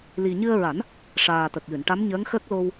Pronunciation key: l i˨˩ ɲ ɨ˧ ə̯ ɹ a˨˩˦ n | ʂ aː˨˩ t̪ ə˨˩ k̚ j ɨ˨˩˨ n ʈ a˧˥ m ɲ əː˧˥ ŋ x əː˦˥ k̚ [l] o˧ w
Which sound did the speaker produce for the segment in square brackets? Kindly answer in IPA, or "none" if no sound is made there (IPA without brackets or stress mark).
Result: l